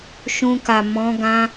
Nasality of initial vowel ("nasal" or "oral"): nasal